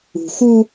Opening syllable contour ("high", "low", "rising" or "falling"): low